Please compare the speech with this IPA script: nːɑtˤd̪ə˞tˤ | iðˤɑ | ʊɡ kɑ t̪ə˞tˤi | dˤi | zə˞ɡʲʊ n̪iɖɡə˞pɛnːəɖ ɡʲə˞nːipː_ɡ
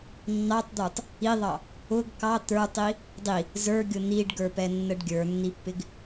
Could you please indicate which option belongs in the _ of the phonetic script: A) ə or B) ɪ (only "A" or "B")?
B